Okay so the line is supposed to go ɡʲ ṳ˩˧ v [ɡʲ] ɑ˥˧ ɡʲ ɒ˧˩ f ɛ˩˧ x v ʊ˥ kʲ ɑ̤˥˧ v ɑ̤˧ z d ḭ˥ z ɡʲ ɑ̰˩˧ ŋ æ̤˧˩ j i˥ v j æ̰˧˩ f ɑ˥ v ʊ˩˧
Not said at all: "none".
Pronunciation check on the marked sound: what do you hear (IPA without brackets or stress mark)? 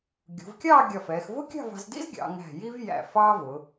kʲ